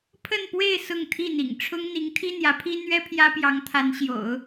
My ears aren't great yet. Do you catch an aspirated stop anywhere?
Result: yes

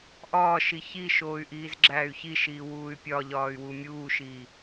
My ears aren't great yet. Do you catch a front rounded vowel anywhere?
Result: yes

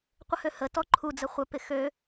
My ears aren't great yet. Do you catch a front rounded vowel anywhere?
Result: yes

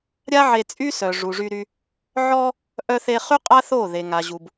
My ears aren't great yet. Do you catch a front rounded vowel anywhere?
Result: yes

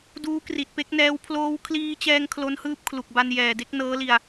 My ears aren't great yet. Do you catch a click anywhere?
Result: no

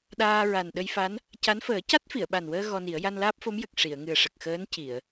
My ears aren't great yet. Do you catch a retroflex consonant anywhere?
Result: yes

